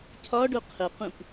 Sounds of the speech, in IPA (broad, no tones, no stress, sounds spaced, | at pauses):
cʰ ɒ ɖ o qʰ ə q ũ p